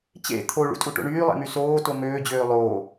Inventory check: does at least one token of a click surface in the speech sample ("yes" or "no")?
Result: no